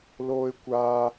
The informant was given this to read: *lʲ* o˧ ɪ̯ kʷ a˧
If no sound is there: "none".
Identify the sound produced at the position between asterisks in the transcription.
l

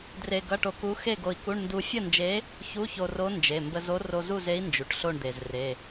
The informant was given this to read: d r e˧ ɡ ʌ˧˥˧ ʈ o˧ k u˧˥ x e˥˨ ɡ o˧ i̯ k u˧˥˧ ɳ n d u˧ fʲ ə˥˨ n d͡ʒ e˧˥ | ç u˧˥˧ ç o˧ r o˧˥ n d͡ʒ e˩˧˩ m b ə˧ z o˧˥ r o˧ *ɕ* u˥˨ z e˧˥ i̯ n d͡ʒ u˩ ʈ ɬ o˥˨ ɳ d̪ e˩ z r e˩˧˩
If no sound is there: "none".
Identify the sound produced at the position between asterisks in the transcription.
z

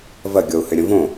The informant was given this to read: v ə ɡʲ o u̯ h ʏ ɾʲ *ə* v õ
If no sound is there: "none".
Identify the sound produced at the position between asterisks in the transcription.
ə̃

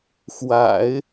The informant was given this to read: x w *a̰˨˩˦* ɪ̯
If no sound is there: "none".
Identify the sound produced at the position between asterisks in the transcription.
a̰˨˩˦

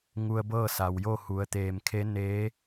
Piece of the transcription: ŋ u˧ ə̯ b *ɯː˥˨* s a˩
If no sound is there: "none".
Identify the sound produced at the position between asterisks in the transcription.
ɤː˥˨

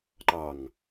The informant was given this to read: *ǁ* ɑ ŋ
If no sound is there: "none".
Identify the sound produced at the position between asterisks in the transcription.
ǃ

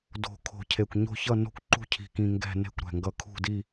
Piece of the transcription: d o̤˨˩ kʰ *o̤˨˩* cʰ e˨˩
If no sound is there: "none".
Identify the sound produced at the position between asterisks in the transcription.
o̤˨˩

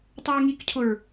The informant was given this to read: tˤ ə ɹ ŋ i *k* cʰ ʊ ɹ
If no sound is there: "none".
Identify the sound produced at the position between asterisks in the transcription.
k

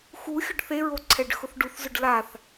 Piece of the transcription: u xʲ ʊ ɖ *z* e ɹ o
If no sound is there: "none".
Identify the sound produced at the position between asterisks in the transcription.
θ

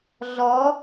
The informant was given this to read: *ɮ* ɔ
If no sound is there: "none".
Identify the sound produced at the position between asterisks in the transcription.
ɮ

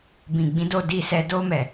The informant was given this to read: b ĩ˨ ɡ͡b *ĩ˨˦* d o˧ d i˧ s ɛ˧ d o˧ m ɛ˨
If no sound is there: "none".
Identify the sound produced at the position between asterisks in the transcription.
ĩ˨˦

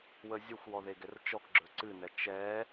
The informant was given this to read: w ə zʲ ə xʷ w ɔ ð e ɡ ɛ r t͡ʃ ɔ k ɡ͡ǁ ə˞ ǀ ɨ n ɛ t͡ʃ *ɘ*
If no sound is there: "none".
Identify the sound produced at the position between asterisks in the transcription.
ɛ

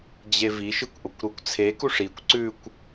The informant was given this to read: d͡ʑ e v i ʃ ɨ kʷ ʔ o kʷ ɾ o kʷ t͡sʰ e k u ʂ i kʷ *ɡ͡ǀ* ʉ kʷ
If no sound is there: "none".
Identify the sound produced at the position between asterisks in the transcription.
ǀ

